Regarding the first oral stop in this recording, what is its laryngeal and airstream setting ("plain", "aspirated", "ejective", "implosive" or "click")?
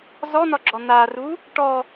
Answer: click